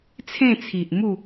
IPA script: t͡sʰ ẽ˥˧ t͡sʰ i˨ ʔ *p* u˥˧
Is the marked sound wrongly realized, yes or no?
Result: yes